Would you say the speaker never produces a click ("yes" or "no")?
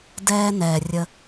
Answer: yes